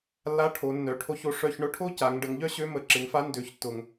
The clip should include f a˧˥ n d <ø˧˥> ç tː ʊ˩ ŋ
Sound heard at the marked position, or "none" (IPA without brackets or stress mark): ø˩˧